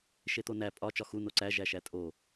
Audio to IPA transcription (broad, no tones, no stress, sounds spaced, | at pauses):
ʃ e t̪ o n æ pʼ ɒ t͡ʃ ɒ x u n o ǀ æ ʒ æ ʃ æ tʼ o